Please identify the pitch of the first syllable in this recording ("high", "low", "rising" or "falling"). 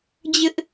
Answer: high